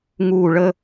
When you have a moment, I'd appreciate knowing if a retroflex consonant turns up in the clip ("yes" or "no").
yes